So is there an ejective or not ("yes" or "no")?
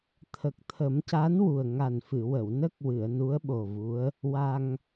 no